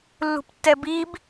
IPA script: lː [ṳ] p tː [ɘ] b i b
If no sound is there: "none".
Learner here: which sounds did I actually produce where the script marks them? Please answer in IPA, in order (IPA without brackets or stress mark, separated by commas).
ṳ, ɛ